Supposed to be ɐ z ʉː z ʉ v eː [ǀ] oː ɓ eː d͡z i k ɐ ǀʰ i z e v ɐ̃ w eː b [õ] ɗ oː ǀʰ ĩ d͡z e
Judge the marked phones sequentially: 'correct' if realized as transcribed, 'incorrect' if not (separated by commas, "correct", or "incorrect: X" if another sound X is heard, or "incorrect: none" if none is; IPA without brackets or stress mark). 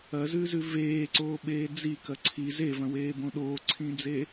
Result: correct, correct